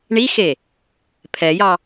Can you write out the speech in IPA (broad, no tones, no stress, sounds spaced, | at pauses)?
ɳ i x e | pʰ ɛ j ɑ